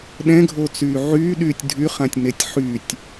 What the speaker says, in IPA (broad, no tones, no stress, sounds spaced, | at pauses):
ɗ ɛ̃ ɡʱ o t͡s yː ʕ yː ɗ yː tʲ dʱ y χ ã tʲ n e tʲ ħ y tʲ